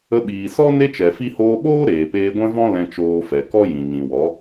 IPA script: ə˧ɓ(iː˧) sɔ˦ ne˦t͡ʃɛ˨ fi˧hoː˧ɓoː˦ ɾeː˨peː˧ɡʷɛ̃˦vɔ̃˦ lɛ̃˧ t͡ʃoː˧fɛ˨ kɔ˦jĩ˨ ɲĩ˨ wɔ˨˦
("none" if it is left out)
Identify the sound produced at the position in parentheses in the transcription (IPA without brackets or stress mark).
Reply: iː˨